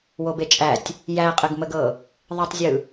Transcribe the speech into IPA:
w o b e t͡ʃʼ æ tʲ | j æ qʼ ɘ ɡ m ə ɡ ɤ | ðˤ ɘ tˤ zʲ ɯ

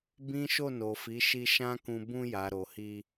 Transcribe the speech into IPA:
b ĩ˦ ʃ o˦˨ n o˨ f i˨˦ ʃ i˧ ʃ ã˦ k ũ˧ b ũ˧ j a˨ ɾ o˨ h i˧

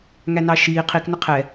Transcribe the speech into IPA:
ŋ æ n ɑ ʃ iː qʰ i k n ʊ qʰ ɛ

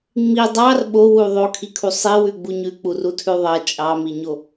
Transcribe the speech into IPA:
ŋ͡m i dˤ ɑ r ɓ o w u ðˤ o kʰ i kʰ u sˤ i w ʉ ɡ͡b u ɲ ʉ k͡p u r u tʰ ʉ ðˤ ʌ t͡ʃʼ ɑ m i ɲ o

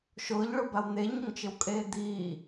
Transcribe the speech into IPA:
ʃ ʊː ʎ ɭ ʊ b a w n̪ e ɲ ʊ ŋ t͡ʃ ɪ w kʼ eː d̪ iː

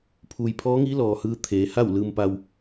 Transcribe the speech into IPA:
pʰ uː˩ j pʰ ɔː˧˥ ŋ iː˧˥ l ɔː˩ h ɯː˧ t̪ʰ eː˩˧ h a˥˨ w l ɯː˧ m p a˧ w

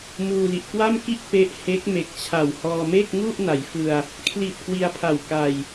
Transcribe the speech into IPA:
m uː˧ l i˨˩ ʔ k w a˥˩ m k i˥˩ ʔ p e˦˥ ʔ h e˦˥ k̚ m e˨˩ k̚ t͡ɕʰ a˨˩ w h ɔː˧ m e˥˩ k̚ ŋ u˥˩ ʔ n a˩˦ j f ɯ˧ a̯ | kʰ l i˨˩ t̚ k w i˧ a̯ pʰ a˨˩ w k a˧ j

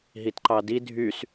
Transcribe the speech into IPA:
ɦ i t ǃ ɑ d i dʱ y s

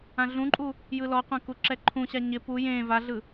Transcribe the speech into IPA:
ã ɮ ũ ǃʼ u | j ɯ l ɔ qʷ ã k u ǁ ɛ ǃʰ ũ ɕ a ɲ ɪ p u j ẽ v a ɮ ɯ

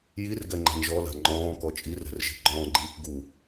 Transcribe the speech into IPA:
j i r ɡ ɛ ŋ͡ǃ a̤ n ʒ ɔ l a̤ ŋ͡ǃ ɔ̃ː k ɔ t͡ʃʼ i r ɛ̤ r ʒ i̤ ɡ͡ǃ ɔ̃ː ɡ͡ǃ iː k ɡ u

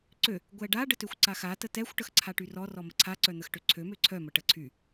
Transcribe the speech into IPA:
ǀ ø | ɡʷ ɛ ɖ a ɖ ə t ø xʷ ǀ a x a t ə t ɛ xʷ ʈ ə x ǀʰ a ʈ y r ɔ r ɔ m ə ǀʰ a ǀ œ n̪ ə x ʈ ø ǀʰ ø m ø ǀʰ œ m ə ʈ ə ǀʰ y

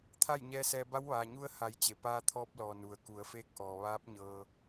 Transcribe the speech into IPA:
t̪ʰ a˥˨ j ɲ ɛː˧˥ s ɛː˧ b a˧˥ w ʋ aː˩ ɲ u˧˥ ə̯ h a˩˧ j t͡ɕ e˩ p aː˧ t̪ʰ ɔː˧ p̚ l ɔː˩ n u˩ ə̯ k u˩˧ ə̯ f eː˧˥ k̚ ʔ ɔː˩ ʋ aː˧˥ p̚ ɲ ɤː˧

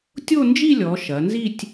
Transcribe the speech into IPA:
tʲ o˥˧ n d͡ʒ i˥˧ lʲ ɔ˩˧ ʃ ɐ˩˧ n z i˥˧ tʲ

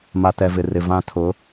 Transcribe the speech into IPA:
m a˨ t ɛ˨ v ɪ˨ r ɪ˨ v ã˦ tʰ ʊ˨˦

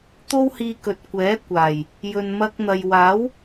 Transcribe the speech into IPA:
t̪ o˥ w h iː˧ k ɵ˨ t̚ kʷ ɛː˨˥ kʷ aː˨˩ j | j ɵ˨ n m ɐ˧ k̚ n̪ ɐ˨ j w aː˨˥ w

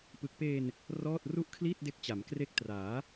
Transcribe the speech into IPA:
p ɯ˨˩ k̚ p eː˧ n | r ɔː˥˩ t̚ r u˥˩ ʔ kʰ l iː˥˩ t̚ d e˦˥ k̚ t͡ɕ a˩˦ m k r e˦˥ k̚ t r aː˩˦

